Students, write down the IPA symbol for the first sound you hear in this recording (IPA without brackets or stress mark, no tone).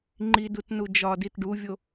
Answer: ŋ͡ǃ